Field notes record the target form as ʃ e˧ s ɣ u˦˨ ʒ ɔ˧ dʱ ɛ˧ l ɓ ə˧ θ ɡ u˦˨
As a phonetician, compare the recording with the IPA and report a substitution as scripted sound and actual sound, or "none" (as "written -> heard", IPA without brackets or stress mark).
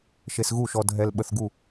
ʒ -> ʃ